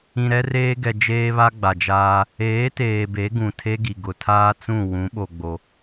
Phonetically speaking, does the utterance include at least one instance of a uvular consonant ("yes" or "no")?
no